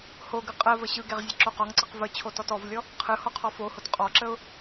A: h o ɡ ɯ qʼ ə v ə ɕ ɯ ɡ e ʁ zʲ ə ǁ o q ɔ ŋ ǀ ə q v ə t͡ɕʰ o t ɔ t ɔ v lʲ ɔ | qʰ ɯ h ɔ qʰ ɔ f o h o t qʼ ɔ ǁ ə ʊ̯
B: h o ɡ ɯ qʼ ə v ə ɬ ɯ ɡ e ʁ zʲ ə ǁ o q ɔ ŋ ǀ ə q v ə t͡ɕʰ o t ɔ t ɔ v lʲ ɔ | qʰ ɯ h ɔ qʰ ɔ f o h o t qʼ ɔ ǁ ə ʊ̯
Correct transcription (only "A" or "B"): A